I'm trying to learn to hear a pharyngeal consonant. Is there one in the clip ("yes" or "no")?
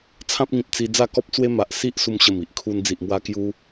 no